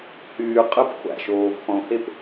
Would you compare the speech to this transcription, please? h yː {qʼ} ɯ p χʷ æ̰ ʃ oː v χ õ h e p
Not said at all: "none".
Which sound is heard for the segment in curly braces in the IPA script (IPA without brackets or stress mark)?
qʼ